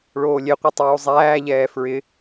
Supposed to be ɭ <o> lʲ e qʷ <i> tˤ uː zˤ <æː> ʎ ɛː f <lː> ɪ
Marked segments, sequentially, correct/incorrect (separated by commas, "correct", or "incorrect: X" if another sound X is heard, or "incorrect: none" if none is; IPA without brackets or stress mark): incorrect: oː, incorrect: e, correct, incorrect: ɹ